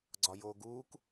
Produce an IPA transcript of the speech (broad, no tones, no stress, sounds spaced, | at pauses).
ɡ͡ǀ ɒ j oː ɡ uː k